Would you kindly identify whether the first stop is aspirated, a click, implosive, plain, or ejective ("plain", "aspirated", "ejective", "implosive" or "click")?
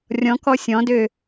plain